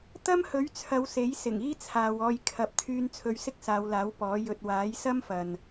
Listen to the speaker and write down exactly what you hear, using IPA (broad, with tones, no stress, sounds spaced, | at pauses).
t̪ ɐ˥ m h ɵ˨˥ ɥ t͡sʰ ɐ˨˧ w s e˨˥ j s ɪ˨˩ ŋ iː˥ t͡sʰ aː˨ w ɔː˧ j kʰ ɐ˨ p̚ t̪ʰ yː˧ n t͡sʰ ɵ˧ ɥ s ɪ˥ k̚ s aː˨˧ w l aː˨˥ w p ɔː˨˥ j ɵ˧ t̚ w aː˨˥ j s ɐ˥ m f ɐ˨ n